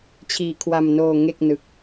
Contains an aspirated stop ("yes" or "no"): yes